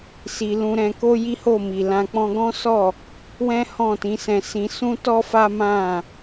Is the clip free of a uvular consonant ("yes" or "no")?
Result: yes